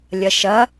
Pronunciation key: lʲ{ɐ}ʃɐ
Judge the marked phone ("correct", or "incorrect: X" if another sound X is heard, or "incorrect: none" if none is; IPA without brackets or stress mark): correct